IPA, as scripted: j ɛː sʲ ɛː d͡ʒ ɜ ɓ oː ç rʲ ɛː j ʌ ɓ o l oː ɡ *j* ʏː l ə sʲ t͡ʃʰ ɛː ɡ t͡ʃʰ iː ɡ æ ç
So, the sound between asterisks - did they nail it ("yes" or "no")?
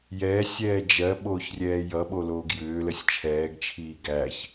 yes